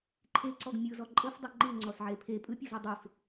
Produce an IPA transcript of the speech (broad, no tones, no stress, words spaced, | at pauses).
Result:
ǃʰeǀɔɡ mʲɯzɔ ǃʼɤfdˤe ŋ͡ǃɯŋ͡ǀɔsʕe pʰe pʼɯpʲɤzɤ dˤef